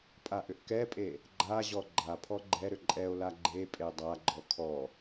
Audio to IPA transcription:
pʼ a ʔ ʏ ʔ k ɛ pʼ e | ɡ͡ǃ a ʑ ɔ ɡ͡ǃ a pʰ ɔ ɡ͡ǃ ɛ ɾ ʏ ǃʼ ɛ o̯ l a ɡ͡ǃ e pʼ e dˤ a ɡ͡ǃ ɔ kʰ ɔ

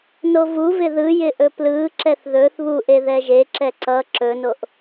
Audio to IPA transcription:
n o v u v ɪ ð ɯ j ɪ ʔ ɵ p l ɯ ǁ ɛ θ ð ɵ θ β u ʔ e ð ɛ ʒ e ǁ ɛ ǀ ʌ ǁ ɵ n o ʔ

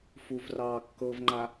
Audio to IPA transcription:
f u v r ɑː kː ɤ v ŋ͡ǃ a

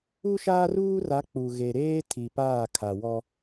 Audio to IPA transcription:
u˦ ʃ aː˦ r uː˦ r a˨˦ k͡p u˨ ɣ e˨ ɾ eː˦ tʰ i˨ p aː˦˨ kʰ a˨ w ɔ˦

